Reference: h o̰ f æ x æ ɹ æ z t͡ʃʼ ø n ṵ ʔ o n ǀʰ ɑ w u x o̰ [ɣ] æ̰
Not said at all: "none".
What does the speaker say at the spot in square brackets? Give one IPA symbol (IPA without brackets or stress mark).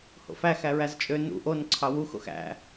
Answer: x